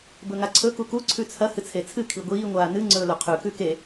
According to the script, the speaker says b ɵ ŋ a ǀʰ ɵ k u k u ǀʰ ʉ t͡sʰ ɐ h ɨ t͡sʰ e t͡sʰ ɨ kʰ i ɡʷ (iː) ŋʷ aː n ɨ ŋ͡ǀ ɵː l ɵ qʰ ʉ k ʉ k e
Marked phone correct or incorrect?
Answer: correct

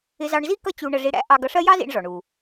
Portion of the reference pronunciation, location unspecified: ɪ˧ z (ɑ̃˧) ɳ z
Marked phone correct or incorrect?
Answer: incorrect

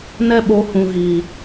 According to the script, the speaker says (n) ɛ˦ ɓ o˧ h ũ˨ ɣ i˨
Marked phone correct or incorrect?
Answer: correct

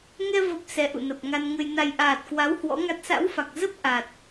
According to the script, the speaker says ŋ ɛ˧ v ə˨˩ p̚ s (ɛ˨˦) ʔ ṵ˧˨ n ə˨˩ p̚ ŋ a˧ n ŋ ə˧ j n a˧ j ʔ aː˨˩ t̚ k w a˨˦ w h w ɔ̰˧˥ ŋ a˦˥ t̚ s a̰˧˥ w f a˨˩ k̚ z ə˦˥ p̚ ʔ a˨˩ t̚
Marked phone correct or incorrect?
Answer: correct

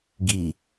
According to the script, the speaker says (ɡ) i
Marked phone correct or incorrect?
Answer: correct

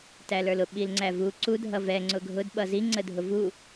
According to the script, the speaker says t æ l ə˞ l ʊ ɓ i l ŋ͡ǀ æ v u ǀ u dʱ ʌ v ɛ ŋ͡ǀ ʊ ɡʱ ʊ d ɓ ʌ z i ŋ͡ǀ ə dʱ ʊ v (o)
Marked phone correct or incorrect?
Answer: incorrect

